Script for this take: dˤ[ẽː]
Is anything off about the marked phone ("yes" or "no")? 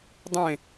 yes